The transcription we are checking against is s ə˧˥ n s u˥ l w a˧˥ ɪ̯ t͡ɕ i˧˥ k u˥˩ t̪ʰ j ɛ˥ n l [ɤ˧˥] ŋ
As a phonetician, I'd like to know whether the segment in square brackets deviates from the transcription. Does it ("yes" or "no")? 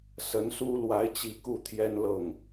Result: yes